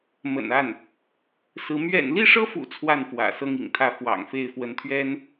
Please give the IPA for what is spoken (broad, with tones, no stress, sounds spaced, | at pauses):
m ə̰˨˩ n a˥˩ n | s ɹ̩˧˥ m ɥ ɛ̰˨˩ n l i˥˩ ʂ ɤ˥ f ṵ˨˩ t͡sʰ w a˥˩ n f w ä̰˨˩ s ɤ˥ ŋ ḭ˨˩ ŋ t̪ʰ ä˥˩ f w ɑ̰˨˩ ŋ f e˥˩ ɪ̯ f w ə˧˥ n t̪ʰ ɥ ɛ˥ n